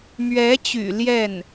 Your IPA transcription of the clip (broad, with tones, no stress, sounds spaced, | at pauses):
m ɥ ɛ˧˥ t͡ɕ y̰˨˩ l j ɛ˥˩ n